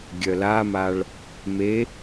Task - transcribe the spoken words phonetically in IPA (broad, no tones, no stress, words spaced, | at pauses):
ɡʲœlamaɭ | me